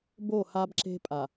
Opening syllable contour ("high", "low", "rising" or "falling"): falling